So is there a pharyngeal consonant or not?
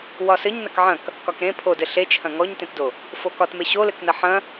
yes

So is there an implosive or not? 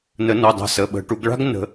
yes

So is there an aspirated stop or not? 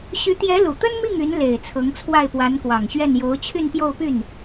yes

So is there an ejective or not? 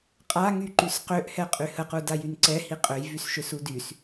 yes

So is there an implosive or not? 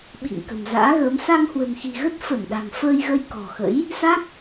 yes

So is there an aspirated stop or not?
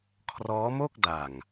yes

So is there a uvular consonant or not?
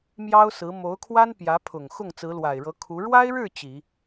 no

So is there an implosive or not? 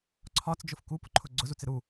no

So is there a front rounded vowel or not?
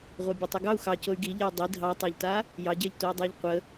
yes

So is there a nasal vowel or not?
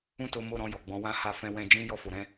yes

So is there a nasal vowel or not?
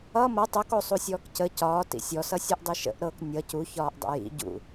no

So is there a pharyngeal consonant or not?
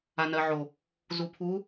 yes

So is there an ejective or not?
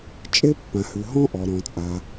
yes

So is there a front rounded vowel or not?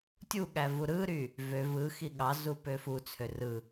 yes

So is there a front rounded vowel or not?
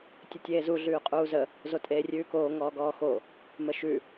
no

